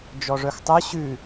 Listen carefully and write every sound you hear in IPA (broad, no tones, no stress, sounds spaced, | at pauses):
d͡ʒ ɔ ʐ œ x tˤ œ ɕ ʉ